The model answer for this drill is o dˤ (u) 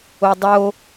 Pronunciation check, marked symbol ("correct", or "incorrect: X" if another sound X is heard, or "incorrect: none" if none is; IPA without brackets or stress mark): incorrect: o